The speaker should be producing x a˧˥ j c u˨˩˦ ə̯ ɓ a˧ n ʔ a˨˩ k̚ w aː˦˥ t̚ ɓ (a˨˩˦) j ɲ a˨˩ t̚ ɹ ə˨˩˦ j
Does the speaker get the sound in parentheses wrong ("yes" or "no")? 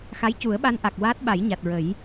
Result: no